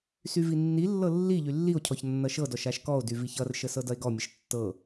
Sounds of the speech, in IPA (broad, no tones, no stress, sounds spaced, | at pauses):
s y v i nː i lː ɤ lː i ʎ y lː i o̯ cʰ ɔ ç nː ʌ ʃ ɤ d ɔ ʃ a ʃ k ɔ o̯ d y v i ç ʌ r ʃ ə s ɤ d ʌ e̯ ɡ ɔ mʲ ə ʃ tː ɤ